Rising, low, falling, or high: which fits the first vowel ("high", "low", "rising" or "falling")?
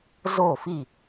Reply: falling